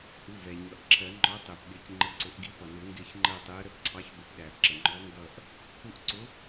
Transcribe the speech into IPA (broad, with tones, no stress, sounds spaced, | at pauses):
ʔ u˩˧˩ v ɛ˩ ɲ ʌ˩ ʔ ǁʰ ɜ˨˩˦ ŋ͡ǃ ɔ˨˥ tˤ ɪː˩ p ɠ ɪː˨˩˦ c ŋ͡ǃ ə˨˥ ǀ ʊ˨˩˦ ʔ ɡ i˨˥ p ʌ˩ n ʊ˨˩˦ ŋ ɡ ɪː˦˨ ç ŋ͡ǃ ɜ˦˨ tˤ ɪː˨˥ ə̯ ɾ ə˦˨ p ǀʰ ɑ˨˥ ç b ɪ˨˩˦ p ɗ æː˩ p ǁ ə˩ ŋ͡ǃ ɔ˨˥ ŋ ɡ ʌː˦˨ ʔ | h u˦˨ ʔ ǀ ʊ˨˥